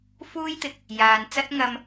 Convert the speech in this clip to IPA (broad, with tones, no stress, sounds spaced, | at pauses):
f uː˥ j t̪ ɪ˨ k̚ | j aː˨ n t͡s ɐ˥ t̚ ŋ ɐ˥ m